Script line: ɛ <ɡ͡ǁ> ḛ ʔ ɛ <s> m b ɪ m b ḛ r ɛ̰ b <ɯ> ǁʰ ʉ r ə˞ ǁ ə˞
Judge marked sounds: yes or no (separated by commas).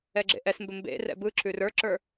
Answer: yes, yes, yes